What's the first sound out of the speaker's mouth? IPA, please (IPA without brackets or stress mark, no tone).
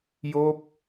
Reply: j